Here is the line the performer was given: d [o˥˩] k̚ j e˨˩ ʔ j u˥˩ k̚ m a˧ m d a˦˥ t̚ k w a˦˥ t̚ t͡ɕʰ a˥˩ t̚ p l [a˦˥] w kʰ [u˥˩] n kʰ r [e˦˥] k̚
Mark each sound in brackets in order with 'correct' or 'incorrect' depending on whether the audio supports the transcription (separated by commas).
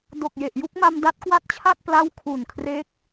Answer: incorrect, incorrect, incorrect, correct